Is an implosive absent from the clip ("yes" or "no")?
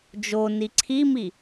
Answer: yes